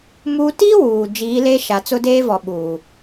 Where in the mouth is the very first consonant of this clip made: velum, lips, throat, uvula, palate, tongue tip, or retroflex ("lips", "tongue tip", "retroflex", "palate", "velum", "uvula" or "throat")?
lips